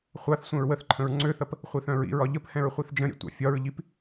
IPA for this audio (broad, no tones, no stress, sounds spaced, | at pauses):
χʷ a θ sʷ ɛ̃ ɹ w ə θ ǃʰ ə̃ ɹ ŋ͡ǀ ø θ ɐ p | χʷ i θ œ̃ ɹ ḭ ɹ ɒ ʎ ə p h ɛ̃ ɹ χʷ i θ d͡ʒ ə̃ ɾʲ ɛ̰ tʷ a̰ fʲ ɒ ɹ ʎ i p